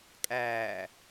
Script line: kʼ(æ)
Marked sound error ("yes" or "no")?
yes